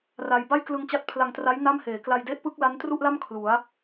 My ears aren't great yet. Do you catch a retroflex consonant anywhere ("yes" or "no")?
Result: no